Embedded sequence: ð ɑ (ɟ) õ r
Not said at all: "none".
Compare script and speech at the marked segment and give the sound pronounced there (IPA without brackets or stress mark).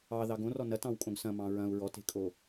ɡ